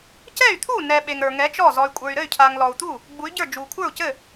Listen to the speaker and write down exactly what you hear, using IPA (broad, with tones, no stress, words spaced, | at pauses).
cɛ˥˩y̯t̪ʰu˥˩nɛ˨ ɓe˨ŋɾə˞˨ŋɛ˨˥t͡ʃɔ˥˩ zɔ˨y̯ kʷʼə˞˨y̯ɾɘ˥˩y̯cʰa˨ŋ lɔ˨u̯t̪u˥˩ | ɡ͡bu˨˥y̯ɟə˞˥˩d͡ʒu˨ kʷʰə˞˥˩u̯cɘ˥˩